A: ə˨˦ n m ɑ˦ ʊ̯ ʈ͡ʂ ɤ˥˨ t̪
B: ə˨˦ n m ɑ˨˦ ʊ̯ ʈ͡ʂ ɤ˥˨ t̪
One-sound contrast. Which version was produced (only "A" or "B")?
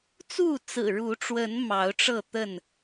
B